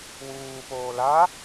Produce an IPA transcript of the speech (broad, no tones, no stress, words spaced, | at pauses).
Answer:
wuːpoː la